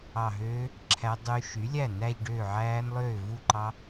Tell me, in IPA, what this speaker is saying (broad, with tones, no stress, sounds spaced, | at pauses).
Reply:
ɑ˧˩ ɦ øː˦˥ | ǁʰ æ˦˥ dˤ y˦˥ ʃ y˩˥ lʲ æ˥˩ n æ˥˧ ʎ ɖ ø˥˩ ʕ æː˦˥ n lˠ øː˥˩ v u˥˩ ǃ ɑ˦˥